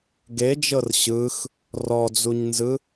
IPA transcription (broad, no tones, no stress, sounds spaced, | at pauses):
ɡ e d͡ʒ ɤ r ɕ ɯ x | r ɔ d͡z u ɲ n z ɯ